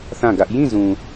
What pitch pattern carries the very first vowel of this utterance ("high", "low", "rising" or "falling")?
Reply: falling